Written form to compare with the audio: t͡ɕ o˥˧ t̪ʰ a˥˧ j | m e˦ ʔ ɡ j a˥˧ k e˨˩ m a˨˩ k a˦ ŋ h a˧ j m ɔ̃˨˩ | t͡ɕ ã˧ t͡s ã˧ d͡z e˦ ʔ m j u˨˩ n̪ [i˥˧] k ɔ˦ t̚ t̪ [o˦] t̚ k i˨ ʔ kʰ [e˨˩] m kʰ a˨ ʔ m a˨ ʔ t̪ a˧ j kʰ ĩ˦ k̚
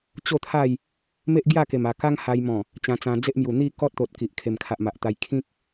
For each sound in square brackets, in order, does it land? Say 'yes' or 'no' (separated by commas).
yes, no, yes